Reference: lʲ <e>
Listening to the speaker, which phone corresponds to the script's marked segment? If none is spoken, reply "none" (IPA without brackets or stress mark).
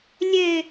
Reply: e